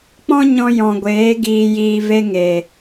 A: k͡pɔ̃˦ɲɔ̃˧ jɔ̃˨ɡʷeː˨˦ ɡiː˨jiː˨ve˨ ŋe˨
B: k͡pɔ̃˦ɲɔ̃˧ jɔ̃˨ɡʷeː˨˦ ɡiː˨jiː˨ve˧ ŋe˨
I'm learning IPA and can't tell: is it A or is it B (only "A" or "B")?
B